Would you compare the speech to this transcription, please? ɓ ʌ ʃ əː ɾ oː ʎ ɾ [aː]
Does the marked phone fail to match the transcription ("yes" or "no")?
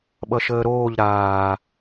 no